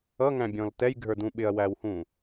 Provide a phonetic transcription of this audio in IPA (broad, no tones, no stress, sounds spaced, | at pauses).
ʌ ŋ æ̃ bʲ ɔ̃ l t ɛ j ɡʱ ə˞ d ũ ɓ ɪ ɐ̯ w æ w h ũ